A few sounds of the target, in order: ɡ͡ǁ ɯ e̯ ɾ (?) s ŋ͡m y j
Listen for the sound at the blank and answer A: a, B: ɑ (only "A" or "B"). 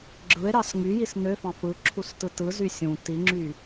B